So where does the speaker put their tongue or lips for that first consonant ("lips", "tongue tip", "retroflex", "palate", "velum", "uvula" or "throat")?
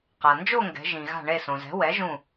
uvula